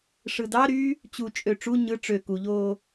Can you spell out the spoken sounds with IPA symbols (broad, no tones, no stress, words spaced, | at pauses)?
ʂɯdɑɾyː | t͡ɕut͡ʃʼø ʈ͡ʂu ɲɯ ʈ͡ʂø kuʎoː